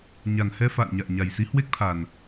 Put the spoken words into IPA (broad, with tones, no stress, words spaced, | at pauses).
ɲa˨˩nhɛ˧ fa̰ː˧˨nɲa̰ː˧˨ ɲa˨˩jsi˨˦ hwe˦˥k̚t̪ʰa˨˩n